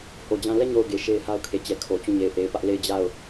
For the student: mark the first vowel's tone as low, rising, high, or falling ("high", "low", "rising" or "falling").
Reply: low